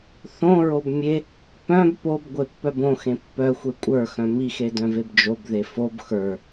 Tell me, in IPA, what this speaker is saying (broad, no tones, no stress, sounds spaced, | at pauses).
θ õ ɹ o b mʲ e | p œ̃ b p o b ɡʷ e pː œ b õ x ẽ pː œ xʷ e kʷʼ ə˞ x œ̃ m i x e d œ̃ v e b d͡ʒ o b ð e f o b x ə˞